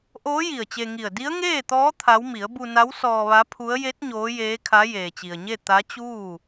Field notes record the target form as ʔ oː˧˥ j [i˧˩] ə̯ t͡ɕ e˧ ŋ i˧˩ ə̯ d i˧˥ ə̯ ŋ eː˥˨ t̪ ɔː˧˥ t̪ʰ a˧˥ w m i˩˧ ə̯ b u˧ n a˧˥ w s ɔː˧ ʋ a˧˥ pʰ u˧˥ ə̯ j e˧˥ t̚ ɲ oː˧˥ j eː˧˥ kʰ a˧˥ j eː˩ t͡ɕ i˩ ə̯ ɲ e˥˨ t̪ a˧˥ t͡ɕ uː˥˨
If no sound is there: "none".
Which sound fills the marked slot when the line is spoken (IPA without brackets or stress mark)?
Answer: i˧˩